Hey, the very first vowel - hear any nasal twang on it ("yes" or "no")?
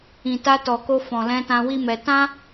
yes